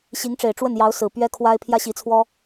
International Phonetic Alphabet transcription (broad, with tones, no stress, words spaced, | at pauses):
ɕi˧˥ŋʈ͡ʂe˨˩ɪ̯ʈ͡ʂwə˥˩njɑ˧˥ʊ̯ sɹ̩˨˩pɥɛ˥kʰwa˥ɪ̯ pʰjä˥ɕi˧˥t͡sʰwɔ˥